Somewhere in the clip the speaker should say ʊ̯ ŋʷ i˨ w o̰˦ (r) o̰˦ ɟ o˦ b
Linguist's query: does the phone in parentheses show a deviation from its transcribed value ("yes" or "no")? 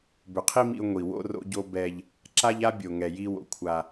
no